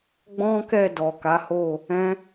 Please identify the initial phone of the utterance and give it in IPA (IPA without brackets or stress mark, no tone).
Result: ɡ͡b